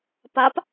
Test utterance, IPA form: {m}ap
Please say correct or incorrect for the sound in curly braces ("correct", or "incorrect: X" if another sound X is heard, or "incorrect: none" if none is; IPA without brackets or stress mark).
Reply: incorrect: p